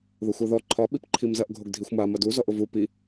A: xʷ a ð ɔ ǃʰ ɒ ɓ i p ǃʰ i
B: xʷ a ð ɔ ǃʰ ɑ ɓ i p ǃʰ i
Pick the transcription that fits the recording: A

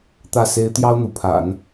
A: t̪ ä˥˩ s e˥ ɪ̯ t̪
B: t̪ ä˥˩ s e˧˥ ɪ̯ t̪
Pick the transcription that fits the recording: A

